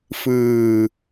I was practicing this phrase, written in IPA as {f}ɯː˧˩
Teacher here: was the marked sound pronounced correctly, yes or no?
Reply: yes